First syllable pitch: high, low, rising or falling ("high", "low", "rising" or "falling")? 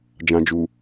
low